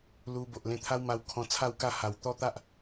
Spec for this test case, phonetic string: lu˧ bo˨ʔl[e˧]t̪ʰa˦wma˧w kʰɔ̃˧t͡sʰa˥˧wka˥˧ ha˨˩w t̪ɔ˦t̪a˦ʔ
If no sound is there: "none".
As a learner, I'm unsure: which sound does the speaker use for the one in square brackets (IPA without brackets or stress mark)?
ẽ˧